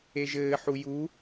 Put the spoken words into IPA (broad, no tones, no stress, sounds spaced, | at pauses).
e ʒ ɘː ħ u j u